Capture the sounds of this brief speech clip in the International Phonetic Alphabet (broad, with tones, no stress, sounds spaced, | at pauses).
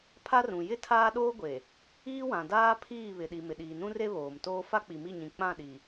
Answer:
pʰ a˦ r ũ˨ j ɪ˦ tʰ aː˦ ɗ oː˦ ɡʷ e˨ | iː˦ w ã˨ d aː˦ pʰ iː˦˨ β ɪ˨ ɗ i˨ m ɪ˨ ɗ iː˨ n ũ˦ r e˦ β oː˨ m t oː˦ f a˦ k͡p i˨ m i˦˨ ɲ ĩ˨ k͡p ã˦˨ ɗ i˨